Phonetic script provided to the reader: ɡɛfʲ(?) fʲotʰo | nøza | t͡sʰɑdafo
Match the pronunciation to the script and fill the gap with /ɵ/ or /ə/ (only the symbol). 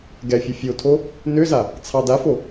ɵ